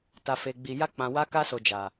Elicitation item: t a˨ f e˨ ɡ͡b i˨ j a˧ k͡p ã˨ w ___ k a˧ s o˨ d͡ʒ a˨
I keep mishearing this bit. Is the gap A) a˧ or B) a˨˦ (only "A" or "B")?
B